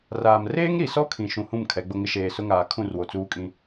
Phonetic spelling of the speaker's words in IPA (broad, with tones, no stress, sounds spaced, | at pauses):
r aː˨ m r eː˦ ŋ ɾ i˨ s ɔ˦ kʰ ĩ˨ ʃ ũ˨ h ũ˦˨ m kʰ ɛ˨˦ ɡ͡b ʊ˦ ŋ ɪ˦ ʃ eː˨ s ʊ˦ ŋ aː˨ kʰ ũ˦˨ r w o˨ t͡s uː˦ kʼ ĩ˦